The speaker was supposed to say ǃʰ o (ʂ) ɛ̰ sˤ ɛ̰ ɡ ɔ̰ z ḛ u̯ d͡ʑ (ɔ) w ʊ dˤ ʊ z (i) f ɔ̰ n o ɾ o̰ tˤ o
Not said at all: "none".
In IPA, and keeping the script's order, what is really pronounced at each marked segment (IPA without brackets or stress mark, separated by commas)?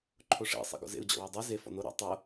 ʂ, ɔ̰, e